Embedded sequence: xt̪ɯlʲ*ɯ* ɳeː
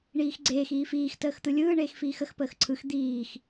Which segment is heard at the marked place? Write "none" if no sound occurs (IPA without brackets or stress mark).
ɯː